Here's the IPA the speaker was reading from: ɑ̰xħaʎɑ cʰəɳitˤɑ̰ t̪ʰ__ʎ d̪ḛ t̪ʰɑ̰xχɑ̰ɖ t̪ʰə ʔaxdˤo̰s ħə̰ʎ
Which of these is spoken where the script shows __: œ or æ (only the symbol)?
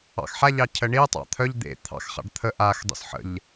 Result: œ